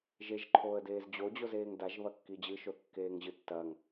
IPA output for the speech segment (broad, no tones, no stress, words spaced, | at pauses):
ʒeʒǃʰoːə̯deːz d͡ʑod͡ʑozeːŋ daʒβɐkːi d͡ʑɨʃoθkːeːŋʑɨ tːɐŋ